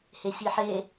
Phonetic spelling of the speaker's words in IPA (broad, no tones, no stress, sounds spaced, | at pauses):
h e ɕ i ħ e